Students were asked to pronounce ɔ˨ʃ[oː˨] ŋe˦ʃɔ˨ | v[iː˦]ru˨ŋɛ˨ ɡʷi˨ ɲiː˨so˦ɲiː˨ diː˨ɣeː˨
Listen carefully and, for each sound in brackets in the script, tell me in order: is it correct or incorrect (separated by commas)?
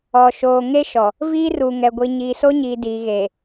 correct, correct